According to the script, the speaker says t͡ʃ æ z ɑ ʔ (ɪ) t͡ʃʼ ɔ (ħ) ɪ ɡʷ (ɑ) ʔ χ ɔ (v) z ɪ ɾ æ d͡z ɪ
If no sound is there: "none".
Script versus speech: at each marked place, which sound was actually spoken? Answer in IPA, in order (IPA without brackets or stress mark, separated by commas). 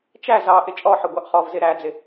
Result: ɪ, ħ, ɑ, v